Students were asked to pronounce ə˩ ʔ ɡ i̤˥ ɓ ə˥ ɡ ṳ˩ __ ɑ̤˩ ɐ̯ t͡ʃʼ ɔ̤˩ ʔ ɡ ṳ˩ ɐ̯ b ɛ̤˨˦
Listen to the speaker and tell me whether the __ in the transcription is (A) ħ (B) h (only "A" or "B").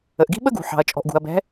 A